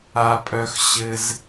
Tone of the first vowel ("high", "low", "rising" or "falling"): high